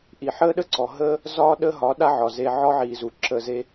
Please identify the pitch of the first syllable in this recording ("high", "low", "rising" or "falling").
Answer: low